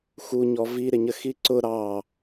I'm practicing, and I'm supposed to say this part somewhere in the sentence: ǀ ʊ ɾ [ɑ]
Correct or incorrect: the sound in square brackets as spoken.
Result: correct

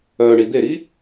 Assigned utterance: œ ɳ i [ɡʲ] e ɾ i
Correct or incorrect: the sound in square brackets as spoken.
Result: incorrect: d̪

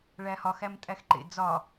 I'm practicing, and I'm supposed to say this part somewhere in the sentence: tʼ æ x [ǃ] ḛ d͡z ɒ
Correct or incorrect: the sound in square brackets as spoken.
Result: correct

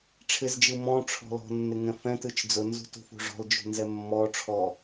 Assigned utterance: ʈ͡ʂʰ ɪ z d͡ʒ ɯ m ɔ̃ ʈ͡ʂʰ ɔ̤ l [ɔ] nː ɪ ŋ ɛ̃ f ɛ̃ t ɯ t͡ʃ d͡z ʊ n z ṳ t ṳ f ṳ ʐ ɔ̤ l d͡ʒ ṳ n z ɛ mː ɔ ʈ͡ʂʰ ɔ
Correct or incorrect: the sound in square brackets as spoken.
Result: incorrect: ɔ̤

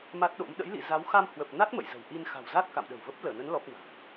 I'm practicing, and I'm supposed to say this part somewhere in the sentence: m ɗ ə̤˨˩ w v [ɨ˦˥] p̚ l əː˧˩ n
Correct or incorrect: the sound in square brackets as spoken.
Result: incorrect: ə˦˥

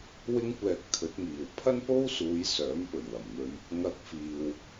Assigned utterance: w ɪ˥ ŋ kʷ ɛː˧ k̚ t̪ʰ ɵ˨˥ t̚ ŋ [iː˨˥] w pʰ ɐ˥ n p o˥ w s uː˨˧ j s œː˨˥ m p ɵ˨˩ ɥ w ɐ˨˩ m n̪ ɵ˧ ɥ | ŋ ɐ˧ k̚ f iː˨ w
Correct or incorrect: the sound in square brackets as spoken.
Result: incorrect: iː˨˩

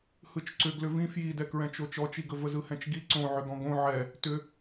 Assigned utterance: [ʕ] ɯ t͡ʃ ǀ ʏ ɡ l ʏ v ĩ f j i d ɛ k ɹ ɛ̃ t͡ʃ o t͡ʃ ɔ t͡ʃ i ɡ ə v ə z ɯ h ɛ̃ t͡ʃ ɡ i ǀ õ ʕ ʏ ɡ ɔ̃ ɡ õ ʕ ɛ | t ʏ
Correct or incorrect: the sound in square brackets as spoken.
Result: incorrect: h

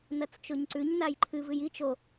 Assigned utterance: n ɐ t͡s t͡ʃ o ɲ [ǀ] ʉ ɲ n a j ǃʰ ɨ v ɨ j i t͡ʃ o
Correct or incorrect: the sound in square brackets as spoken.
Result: correct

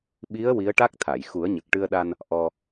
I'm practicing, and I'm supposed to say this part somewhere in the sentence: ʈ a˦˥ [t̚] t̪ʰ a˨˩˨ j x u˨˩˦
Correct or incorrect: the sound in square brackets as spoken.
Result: incorrect: k̚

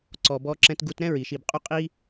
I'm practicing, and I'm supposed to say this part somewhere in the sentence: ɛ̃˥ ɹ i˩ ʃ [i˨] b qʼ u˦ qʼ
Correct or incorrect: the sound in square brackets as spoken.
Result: correct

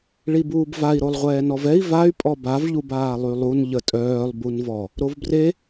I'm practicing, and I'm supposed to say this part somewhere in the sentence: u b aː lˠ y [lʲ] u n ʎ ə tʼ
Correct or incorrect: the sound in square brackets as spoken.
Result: incorrect: lˠ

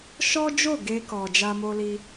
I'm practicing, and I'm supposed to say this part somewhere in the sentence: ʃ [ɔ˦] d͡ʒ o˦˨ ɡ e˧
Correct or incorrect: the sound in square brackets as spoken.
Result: correct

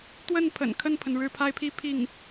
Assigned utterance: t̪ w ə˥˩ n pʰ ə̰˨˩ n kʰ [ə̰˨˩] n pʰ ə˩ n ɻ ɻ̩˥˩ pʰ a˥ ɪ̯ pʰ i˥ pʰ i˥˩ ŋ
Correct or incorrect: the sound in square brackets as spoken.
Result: incorrect: ə˥˩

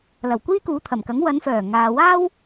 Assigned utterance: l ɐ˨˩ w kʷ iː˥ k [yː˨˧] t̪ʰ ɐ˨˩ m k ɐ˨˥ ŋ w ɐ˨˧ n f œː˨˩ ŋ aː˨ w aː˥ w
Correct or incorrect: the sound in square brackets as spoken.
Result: incorrect: uː˨˧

